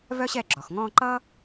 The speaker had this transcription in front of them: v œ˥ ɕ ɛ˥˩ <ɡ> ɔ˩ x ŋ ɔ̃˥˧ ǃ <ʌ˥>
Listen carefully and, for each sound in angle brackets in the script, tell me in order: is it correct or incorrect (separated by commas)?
incorrect, correct